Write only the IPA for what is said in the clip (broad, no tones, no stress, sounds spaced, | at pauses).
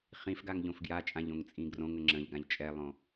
χ ĩ f ɡ a ŋ ʎ õ f ɡ j a t͡ʃʼ ã ʎ õ ŋ t͡sʼ ĩ ɡ r õ ŋ ə ŋ͡ǁ ə̃ ʎ ɡ ã ʎ t͡ʃʼ ɛ lˠ õ